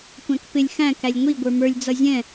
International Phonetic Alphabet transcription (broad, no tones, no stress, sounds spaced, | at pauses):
kʷ æ̃ k p ɪ lʲ x æ̃ k æ lʲ ŋʷ i ɡʷ ə˞ m ə˞ lʲ d͡z ʌ zʲ ɛ̃